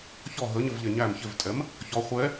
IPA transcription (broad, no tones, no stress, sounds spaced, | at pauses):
ç ɔ ɦ ə ɲ ə v ʎ ɛ ɲ æ m ç ɪ v tʼ ɛ m | ç ɔ χʷ ɛ